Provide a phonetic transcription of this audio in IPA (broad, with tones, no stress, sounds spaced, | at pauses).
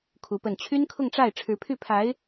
kʰ u˧˥ p ə˥˩ n t͡ɕʰ y˥ n kʰ ʊ˥˧ ŋ ʈ͡ʂ a˥˩ ɪ̯ ʈ͡ʂʰ ɻ̩˧˥ pʰ y˥˩ pʰ a˧˥ ɪ̯